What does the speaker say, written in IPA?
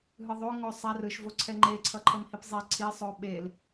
ɦ ɯ ðˤ o ŋ o sˤ a r ɯ ʃ v o ǀʰ ɛ ŋ͡ǃ e ǀʰ ʌ ǃʰ ʌ m h i p zˤ ɛ ǀʰ i sˤ o ɓ e l

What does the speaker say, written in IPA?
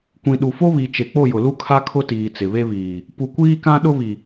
kʷ ĩ˨ ɗ u˨ f o˦ β i˨ t͡ʃ e˨ k͡p o˦˨ j ʊ˨ l u˦ kʰ a˦ kʰ ʊ˦ t iː˨ t͡s ɪ˨ β e˦ β iː˨ | p u˨ kʷ iː˦ k ã˦ ɗ ʊ˦ β i˨

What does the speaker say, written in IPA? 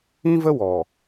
ĩ˦ v ə˦ w ɔ˨

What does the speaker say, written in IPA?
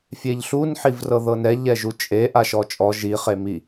fʲ e ʎ ɬ u n ħ i v r ɤ ð ɤ n ɛ ʎ ɛ ʒ u t͡ʃʼ e ʔ a ʃ ɔ t͡ʃʼ ɔ ʒ i χ e m i

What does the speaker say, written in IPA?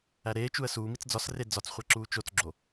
æ ɾ eː t͡ʃ u ə̯ s uː m i t͡s d͡z ɒ s r e d͡z ɒ t͡s χʷ æ ǁ uː t͡ʃ o t͡s ɡ͡ǁ o

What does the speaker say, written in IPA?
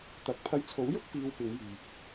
t̪ ɐ˧ k̚ pʰ ɐ˧ j t͡sʰ o˨˥ w j ʊ˥ k̚ p iː˧ w p ɪ˨˧ ŋ j yː˨ p̚

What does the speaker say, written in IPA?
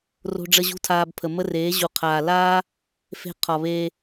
r o̤˧ ɖ͡ʐ ə˧ ʑ ṳ˦ tʰ aː˧ b pʰ ə˨ m ə˦ r eː˨˦ ʑ u˨ qʰ aː˨ l aː˦ | f e̤˧ qʰ ɒ˨ β eː˧

